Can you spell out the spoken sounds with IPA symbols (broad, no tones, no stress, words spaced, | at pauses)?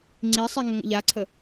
ŋ͡ǀisˤi ŋəŋə̰ʎaǀʰə